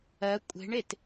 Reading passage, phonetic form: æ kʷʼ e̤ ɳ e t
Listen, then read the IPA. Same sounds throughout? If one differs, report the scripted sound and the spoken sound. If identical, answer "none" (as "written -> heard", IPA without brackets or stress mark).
æ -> ɜ